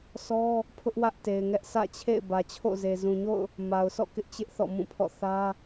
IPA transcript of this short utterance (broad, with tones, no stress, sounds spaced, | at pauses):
sʰ ɔ˦ | pʰ ʊ˦ ʔ w ä˦ ʔ t e˨ ɪ̯ ŋ ɛ˦ ʔ sʰ ä̰˦˨ t͡ɕʰ ḛ˦˨ ɪ̯ b ä˨ t͡ɕʰ o̰˦˨ z e˨ z ũ˨ ɲ o̰˦˨ ʊ̯ | m a˨ ʊ̯ sʰ ɔ̰˦˨ k ɪ˦ ʔ t͡ɕ ɪ˦ ʔ θ ɔ̰˦˨ m ũ˦˨ pʰ ɔ̰˦˨ θ ä˦